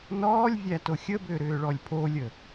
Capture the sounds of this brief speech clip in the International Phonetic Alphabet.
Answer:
nɔːlʲ vʲætoxʲəbʏː ɾʏːɭɔlʲpʰolʲə

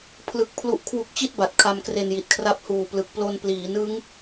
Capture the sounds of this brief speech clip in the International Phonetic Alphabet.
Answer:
pʰlɯ˦˥k̚ pʰlu˦˥ʔkʰwu˦˥k̚t͡ɕi˥˩t̚ba˨˩t̚ kʰa˧mkre˧nji˨˩t̚kʰra˦˥p̚ huː˨˩plɯ˨˩k̚plo˧n pliː˩˦nɯ˦˥ŋ

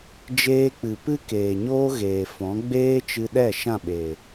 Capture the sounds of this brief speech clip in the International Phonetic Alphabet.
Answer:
d͡ʒeː˧k͡pɨ˨ pɨ˦keː˨ ɲoː˦ɣeː˨fɔ̃˨˦ ɡ͡beː˦t͡ʃɨ˧ɗɛ˦˨ ʃã˦˨ɓeː˨

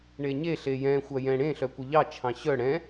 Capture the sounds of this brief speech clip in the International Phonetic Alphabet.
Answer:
ɳeɲe ɬejɛ̃ xʷajɛ̃ɽẽ ɬœkʷɪʎɑ t͡ʃʰɑ̃ɕœ ɽɛ̃

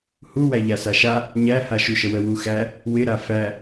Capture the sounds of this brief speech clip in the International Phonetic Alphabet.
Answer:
huwæ ʎasaʃa | ɲæha ʃuʃəwə wuxæ | wɪɾa fæ

